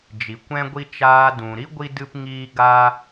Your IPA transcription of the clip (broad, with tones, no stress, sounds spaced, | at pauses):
d͡ʒ i˨ kʷ ɛ̃˦ ɡʷ i˦ t͡ʃ aː˧ d ũ˨ ɾ i˦ ɡʷ i˦ d ɨ˦ p ŋ iː˦ ɡ a˦